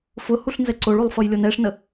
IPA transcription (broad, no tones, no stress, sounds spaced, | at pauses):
f ʊ h u ɬ n z ɛ ǀ o ɭ u lˠ f ʌ j lʲ o n ɛ ʂ n ə